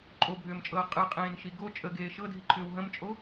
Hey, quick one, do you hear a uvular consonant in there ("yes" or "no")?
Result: yes